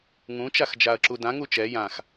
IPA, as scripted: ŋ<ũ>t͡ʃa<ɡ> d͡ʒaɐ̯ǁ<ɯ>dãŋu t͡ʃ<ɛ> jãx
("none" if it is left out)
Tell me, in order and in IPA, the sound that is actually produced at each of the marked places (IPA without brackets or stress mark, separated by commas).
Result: ũ, x, u, ɛ